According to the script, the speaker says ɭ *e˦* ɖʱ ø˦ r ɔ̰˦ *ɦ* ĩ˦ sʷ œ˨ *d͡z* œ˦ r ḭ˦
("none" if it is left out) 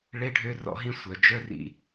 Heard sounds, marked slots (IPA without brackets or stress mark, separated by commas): e˦, ɦ, d͡ʒ